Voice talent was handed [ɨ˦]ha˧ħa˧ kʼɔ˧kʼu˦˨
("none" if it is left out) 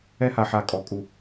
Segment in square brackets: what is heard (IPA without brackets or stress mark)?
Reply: ɛ˦